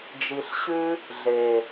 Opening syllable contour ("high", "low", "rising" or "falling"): low